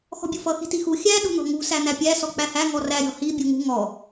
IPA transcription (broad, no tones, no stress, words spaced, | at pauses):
xɔ̤bʲufʌ xi̤tixu xʲæ ɗṳn̪ɔ̤ŋṳ sæn̪æpʲæ sɔk͡pæhæ ŋɔræ ɾʲɔ̤hi bʲuŋṳ ŋɔ